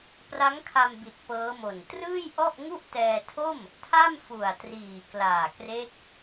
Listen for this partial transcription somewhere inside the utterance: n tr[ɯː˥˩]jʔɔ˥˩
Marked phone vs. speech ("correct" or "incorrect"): correct